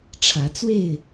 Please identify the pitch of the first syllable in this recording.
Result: rising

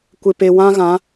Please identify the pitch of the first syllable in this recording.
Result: low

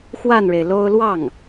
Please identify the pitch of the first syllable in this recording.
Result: falling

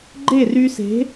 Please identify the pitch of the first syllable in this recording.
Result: falling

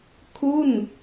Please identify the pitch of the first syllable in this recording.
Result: falling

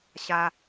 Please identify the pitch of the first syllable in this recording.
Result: high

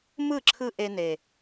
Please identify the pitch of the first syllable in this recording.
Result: falling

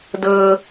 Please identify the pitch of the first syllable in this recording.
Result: high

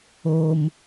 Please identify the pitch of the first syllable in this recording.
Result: high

